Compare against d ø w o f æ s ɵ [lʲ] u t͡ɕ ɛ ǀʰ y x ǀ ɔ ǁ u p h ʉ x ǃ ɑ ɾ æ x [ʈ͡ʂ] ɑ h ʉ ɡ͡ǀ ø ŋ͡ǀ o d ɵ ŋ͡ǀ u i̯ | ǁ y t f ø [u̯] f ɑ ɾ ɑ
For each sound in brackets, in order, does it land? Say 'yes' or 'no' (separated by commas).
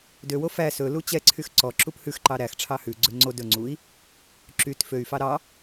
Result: no, no, no